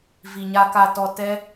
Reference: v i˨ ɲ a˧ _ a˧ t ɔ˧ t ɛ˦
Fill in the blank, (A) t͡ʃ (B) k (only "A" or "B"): B